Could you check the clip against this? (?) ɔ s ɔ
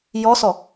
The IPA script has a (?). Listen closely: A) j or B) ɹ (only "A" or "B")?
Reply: A